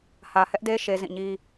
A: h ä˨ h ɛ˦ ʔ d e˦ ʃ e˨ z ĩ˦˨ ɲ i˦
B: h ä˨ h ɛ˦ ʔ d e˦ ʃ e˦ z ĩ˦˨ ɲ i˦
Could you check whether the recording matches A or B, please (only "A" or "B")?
B